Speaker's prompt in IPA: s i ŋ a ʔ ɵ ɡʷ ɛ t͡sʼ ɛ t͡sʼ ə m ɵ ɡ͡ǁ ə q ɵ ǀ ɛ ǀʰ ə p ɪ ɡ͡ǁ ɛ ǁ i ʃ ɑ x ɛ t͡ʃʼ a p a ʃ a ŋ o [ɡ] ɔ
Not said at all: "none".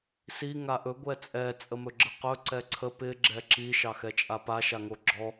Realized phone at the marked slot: ɡ͡ǁ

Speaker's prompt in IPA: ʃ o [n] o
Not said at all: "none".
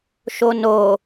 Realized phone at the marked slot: n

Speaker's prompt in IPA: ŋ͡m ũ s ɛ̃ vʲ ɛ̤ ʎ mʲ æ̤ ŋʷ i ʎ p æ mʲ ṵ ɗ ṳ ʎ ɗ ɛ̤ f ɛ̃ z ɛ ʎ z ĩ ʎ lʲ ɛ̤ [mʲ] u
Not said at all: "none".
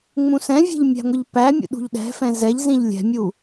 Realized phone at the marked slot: mʲ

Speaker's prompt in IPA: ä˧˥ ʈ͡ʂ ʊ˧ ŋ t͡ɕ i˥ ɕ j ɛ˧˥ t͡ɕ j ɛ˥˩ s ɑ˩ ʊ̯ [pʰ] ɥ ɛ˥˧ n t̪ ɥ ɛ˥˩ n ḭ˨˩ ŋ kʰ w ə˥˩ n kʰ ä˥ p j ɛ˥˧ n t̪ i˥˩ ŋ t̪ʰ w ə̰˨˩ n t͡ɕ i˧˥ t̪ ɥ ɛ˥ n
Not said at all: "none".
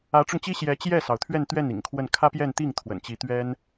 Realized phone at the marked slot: t̪ʰ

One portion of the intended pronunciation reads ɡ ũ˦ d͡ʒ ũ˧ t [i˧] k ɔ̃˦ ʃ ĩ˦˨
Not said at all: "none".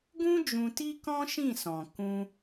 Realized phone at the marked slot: i˦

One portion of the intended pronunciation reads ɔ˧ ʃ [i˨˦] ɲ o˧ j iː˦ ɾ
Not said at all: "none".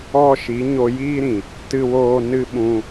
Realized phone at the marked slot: i˨˦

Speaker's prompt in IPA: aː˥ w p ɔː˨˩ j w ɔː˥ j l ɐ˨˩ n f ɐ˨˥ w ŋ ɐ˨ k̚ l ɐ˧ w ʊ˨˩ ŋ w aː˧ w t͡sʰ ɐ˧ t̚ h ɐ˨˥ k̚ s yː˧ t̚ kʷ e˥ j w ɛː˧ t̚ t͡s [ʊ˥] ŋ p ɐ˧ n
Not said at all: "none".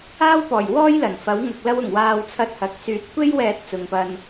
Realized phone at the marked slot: ʊ˨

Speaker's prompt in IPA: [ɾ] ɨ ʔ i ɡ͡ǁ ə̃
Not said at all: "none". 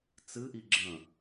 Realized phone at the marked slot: t͡s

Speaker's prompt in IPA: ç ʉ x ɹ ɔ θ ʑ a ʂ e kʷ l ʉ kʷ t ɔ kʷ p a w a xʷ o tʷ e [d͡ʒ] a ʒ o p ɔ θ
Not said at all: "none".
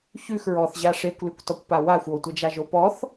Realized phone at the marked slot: d͡ʒ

